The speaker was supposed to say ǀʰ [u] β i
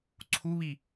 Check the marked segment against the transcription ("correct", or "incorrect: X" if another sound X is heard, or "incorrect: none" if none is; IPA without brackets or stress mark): correct